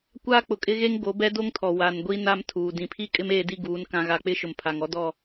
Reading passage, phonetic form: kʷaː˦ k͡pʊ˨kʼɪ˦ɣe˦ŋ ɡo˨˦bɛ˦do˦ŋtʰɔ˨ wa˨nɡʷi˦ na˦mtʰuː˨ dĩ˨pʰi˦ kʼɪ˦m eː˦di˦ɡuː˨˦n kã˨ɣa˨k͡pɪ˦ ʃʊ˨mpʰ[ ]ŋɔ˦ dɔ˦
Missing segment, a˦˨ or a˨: a˨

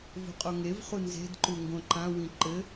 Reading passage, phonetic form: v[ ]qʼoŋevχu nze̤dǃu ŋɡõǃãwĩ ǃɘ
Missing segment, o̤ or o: o̤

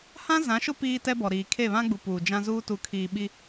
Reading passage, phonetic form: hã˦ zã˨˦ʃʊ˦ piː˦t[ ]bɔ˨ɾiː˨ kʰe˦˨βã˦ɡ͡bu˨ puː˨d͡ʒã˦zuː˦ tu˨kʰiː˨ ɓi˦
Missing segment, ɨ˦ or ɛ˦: ɛ˦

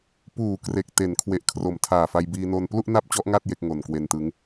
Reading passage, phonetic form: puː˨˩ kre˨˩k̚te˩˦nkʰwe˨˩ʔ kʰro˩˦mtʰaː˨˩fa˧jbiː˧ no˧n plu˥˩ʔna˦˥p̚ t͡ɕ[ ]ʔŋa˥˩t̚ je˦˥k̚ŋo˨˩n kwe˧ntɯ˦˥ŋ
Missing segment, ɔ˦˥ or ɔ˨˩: ɔ˦˥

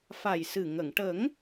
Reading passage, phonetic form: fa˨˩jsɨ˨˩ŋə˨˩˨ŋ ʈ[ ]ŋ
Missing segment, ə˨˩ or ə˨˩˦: ə˨˩˦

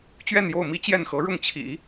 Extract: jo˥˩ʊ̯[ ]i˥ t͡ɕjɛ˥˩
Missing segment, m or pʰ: m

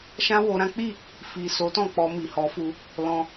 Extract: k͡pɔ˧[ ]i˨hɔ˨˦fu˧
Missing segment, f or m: m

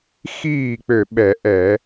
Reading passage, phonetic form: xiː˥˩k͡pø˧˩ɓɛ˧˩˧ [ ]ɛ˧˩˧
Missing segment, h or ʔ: ʔ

